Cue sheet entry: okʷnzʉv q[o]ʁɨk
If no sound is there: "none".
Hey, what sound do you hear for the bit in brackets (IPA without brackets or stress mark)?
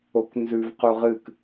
u